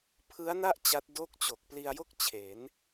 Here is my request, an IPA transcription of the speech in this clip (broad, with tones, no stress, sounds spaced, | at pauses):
pʰ ɯ˦˥ a̯ n a˥˩ ʔ t͡ɕ a˦˥ t̚ d o˥˩ k̚ t͡ɕ o˨˩ k̚ p l i˧ a̯ j o˥˩ k̚ t͡ɕʰ e˩˦ n